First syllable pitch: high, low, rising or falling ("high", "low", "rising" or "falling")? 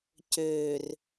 low